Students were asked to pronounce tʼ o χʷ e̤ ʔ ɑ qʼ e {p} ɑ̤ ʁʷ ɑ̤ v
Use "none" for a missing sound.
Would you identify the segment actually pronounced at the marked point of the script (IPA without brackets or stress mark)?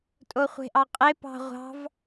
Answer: p